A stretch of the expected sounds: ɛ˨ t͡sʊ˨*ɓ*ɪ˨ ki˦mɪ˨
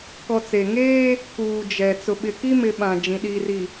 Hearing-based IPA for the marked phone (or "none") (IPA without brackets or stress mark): ɓ